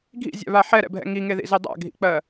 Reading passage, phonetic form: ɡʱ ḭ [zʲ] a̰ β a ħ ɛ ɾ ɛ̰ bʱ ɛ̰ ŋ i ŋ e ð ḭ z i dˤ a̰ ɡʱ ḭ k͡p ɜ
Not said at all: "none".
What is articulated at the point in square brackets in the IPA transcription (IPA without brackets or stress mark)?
zʲ